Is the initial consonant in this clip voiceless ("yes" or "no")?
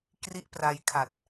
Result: yes